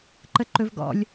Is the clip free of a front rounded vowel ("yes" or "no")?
yes